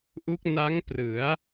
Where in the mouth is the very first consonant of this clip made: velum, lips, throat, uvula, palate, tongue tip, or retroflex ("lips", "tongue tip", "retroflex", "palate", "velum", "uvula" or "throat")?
throat